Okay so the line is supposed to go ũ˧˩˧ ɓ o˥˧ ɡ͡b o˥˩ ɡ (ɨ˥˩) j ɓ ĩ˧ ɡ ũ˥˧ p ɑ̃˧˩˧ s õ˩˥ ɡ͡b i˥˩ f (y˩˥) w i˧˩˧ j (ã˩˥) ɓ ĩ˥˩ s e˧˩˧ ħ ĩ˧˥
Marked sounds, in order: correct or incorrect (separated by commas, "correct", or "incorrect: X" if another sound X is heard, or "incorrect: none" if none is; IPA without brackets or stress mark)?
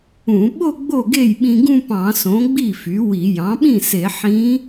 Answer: incorrect: e˥˩, correct, incorrect: ɑ̃˩˥